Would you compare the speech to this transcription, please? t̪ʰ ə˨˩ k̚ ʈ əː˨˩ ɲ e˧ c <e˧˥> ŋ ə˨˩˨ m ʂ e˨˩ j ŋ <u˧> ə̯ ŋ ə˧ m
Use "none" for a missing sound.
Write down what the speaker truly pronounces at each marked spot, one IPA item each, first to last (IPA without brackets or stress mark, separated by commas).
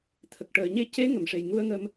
e˧˥, u˧